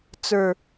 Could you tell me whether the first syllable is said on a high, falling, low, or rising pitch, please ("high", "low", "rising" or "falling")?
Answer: low